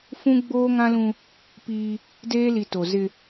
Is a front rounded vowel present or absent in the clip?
absent